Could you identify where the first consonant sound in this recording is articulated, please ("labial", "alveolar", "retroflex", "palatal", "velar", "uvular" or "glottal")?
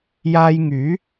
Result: palatal